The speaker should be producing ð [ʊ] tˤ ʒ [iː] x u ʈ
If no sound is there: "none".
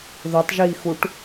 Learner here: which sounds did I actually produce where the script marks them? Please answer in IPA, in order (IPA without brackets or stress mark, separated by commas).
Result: ʊ, iː